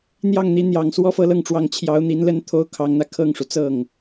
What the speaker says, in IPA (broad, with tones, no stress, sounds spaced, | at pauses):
n̪ j ɑ˥˩ ŋ n̪ i˧˥ n̪ j ɑ˨˩ ŋ s w ɔ˥ f ɤ˥˧ l ɤ˥˩ ŋ ʈ͡ʂ w ɑ˧˥ ŋ t͡ɕʰ j ɑ˧˥ ʊ̯ n̪ i˧˥ n l ə˥ n t̪ʰ o˥ ʊ̯ kʰ ɑ˧˥ ŋ n̪ ä˧ kʰ ɤ˥˩ ŋ ʂ u˩ t͡s ɤ˥˩ ŋ